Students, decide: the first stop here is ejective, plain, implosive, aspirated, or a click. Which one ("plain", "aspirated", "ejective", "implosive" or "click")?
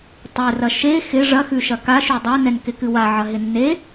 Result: plain